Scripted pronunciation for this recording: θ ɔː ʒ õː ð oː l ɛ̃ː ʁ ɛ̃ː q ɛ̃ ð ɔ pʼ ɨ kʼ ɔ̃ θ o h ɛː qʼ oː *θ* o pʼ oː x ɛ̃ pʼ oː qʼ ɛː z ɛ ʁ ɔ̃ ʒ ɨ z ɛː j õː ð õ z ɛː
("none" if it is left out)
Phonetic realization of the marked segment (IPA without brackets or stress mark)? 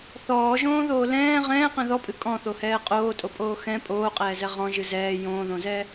tʼ